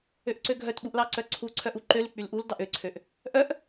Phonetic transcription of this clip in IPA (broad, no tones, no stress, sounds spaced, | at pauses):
ø ʔ ǀ ø ɡʱ œ t ɓ u ʔ l ɑ ǀ œ ǀʰ u ǀʰ œ ʔ u ǃ ø l y k͡p y l ʔ u l d ɑ ʔ ø ǀʰ ø ʔ | ʔ œ ʔ